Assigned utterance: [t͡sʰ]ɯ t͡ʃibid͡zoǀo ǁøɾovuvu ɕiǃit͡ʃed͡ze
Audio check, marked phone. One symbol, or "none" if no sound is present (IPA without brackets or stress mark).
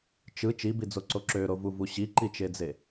t͡ʃ